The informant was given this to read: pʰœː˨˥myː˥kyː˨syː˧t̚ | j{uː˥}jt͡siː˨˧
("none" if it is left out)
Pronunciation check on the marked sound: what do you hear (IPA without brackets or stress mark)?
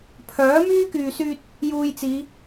uː˧